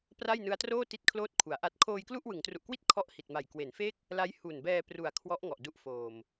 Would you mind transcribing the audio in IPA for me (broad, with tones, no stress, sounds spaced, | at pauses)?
p r a˥˩ j n ɯ˦˥ a̯ t r oː˥˩ t i˦˥ t̚ kʰ l oː˦˥ t̚ kʰ u˩˦ a̯ ʔ a˥˩ t̚ kʰ oː˧ j k l u˥˩ ʔ w ɯ˩˦ ŋ t r u˨˩ ʔ k w i˥˩ t̚ kʰ ɔ˥˩ ʔ h i˨˩ t̚ m a˨˩ j k w e˩˦ n f e˥˩ k̚ | l a˦˥ j h u˨˩ n b ɛː˧ p r u˨˩ a̯ kʰ w ɔ˦˥ ʔ ŋ ɔ˨˩ ʔ d u˦˥ ʔ f oː˨˩ m